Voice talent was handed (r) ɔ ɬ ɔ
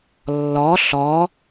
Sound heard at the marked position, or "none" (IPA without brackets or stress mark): lː